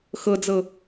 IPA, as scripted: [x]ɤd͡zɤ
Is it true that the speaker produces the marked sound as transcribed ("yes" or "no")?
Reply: yes